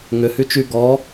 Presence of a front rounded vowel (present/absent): present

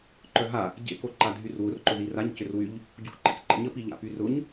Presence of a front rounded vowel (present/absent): present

